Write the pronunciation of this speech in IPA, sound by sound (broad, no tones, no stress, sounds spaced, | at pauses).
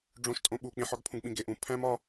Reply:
ɖ͡ʐ õ ʃ tʼ õ ɓ u k͡p ĩ ħ ɒ ɡ pʰ ũ ɡ ɓ ĩ ɡ e ʔ ũ pʰ æ̃ m ɒ